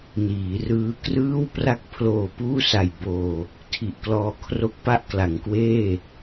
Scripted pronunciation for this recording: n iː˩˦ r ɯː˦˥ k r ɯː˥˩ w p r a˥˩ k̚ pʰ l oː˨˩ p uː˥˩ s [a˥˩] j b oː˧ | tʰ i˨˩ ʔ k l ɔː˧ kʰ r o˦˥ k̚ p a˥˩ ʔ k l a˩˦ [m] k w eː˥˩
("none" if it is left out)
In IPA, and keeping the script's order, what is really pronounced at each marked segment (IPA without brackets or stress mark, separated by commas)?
a˨˩, ŋ